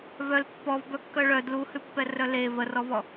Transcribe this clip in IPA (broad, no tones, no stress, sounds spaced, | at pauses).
v œ l pː ɔ v b œ kː œ ɭ œ d l u h ʉ pː ɛ r œ l e v ə r ɔ v ɔ